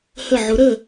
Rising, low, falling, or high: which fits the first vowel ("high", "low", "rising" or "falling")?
falling